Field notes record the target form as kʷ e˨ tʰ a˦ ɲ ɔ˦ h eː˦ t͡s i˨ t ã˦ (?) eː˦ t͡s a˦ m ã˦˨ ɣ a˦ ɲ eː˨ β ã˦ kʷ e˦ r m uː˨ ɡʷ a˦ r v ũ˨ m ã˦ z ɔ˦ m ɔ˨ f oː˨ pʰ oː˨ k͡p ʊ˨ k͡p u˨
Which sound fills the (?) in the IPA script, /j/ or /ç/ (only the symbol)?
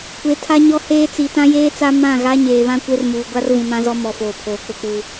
j